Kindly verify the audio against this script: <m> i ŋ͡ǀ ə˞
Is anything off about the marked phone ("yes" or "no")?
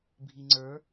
yes